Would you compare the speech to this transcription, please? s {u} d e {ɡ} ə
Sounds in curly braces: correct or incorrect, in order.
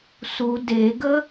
correct, correct

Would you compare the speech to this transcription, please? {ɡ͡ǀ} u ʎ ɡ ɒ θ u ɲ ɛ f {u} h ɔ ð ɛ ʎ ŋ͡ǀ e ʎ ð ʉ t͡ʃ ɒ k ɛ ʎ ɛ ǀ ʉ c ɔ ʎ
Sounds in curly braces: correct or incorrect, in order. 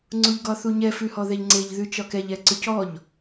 incorrect, incorrect

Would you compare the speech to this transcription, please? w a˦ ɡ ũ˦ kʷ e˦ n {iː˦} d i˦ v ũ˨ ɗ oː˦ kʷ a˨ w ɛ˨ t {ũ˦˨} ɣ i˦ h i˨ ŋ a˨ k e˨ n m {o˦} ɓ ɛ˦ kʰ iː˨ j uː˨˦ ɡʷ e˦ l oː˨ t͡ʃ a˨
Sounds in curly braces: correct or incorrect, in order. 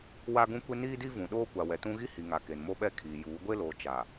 correct, incorrect, correct

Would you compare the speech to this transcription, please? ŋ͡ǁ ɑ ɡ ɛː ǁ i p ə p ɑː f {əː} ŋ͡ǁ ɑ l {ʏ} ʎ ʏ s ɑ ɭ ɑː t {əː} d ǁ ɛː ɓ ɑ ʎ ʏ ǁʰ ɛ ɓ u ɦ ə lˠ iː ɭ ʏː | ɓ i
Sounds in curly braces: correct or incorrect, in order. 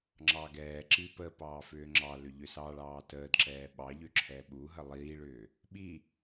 incorrect, correct, correct

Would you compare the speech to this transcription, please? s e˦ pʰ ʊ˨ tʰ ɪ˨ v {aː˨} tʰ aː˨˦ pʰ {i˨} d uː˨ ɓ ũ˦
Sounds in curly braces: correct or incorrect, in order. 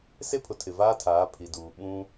incorrect, correct

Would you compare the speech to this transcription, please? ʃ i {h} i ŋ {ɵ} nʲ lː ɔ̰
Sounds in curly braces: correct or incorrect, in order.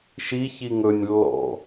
incorrect, correct

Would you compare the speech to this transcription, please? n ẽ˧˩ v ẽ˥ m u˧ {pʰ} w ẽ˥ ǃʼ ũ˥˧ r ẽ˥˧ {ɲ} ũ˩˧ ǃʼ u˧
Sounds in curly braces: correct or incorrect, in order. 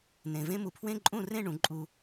correct, incorrect

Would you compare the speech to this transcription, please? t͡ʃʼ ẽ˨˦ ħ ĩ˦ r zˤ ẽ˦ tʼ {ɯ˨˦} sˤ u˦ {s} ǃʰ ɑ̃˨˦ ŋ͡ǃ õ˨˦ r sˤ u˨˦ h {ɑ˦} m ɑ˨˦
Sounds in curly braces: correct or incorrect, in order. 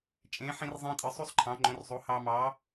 correct, incorrect, correct

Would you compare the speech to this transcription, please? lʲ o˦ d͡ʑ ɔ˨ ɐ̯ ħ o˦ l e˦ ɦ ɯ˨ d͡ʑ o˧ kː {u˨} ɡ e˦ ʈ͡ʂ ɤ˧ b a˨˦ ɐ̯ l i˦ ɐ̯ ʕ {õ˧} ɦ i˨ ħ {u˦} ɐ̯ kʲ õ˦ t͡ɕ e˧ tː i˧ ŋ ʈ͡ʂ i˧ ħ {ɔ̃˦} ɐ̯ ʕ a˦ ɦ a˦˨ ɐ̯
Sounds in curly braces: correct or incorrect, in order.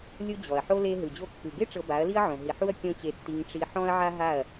incorrect, incorrect, correct, correct

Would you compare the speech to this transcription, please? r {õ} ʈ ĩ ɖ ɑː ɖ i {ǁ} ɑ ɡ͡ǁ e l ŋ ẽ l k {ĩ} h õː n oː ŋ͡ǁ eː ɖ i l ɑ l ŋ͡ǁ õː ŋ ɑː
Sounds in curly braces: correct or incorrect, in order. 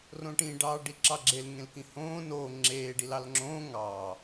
correct, correct, correct

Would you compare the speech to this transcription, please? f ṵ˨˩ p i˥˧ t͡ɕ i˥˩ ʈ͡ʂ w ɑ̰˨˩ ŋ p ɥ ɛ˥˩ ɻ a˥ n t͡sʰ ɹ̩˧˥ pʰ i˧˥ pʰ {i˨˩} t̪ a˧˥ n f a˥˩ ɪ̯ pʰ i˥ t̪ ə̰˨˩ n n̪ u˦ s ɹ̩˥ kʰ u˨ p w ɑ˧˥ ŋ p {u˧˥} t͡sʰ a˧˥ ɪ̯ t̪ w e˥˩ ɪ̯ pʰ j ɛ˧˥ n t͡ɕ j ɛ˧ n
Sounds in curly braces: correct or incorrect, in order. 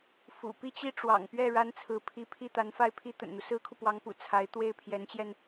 incorrect, incorrect

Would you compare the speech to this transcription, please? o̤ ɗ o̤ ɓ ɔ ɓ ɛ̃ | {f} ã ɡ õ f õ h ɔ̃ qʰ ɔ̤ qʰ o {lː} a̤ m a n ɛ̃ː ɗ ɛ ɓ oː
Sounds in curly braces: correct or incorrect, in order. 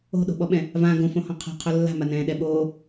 incorrect, correct

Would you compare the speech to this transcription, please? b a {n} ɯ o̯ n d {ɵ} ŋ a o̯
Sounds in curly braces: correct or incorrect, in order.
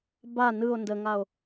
correct, incorrect

